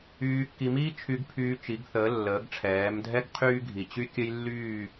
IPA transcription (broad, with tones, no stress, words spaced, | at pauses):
yː˧kːi˧miː˥ t͡ʃʰy˧ɡpʰyː˧ t͡ʃi˩˧ɡθəː˩˧lːəː˩˧ɡʈ͡ʂʰɛː˩˧m dʱɛ˥ɡqʰyː˥ɡʱi˧˩t͡ɕy˥ kʲə˥jlːyː˥˧